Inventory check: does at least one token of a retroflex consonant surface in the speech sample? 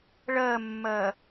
yes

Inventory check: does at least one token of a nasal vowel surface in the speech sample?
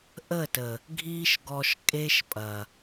no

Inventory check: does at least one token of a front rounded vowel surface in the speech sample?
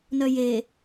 yes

